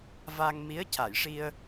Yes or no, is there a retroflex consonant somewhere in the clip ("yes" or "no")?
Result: yes